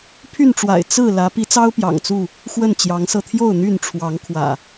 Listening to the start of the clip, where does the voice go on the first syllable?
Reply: falling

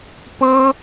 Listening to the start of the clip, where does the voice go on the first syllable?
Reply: high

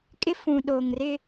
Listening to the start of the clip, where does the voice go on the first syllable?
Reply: high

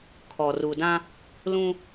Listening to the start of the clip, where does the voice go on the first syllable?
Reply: low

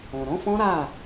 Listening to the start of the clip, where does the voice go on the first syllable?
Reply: low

